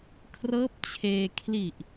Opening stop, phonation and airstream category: aspirated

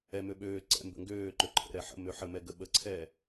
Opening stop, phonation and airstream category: implosive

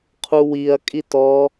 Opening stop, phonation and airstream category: aspirated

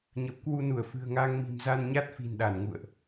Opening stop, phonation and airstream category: plain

